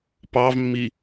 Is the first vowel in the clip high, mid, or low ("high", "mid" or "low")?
low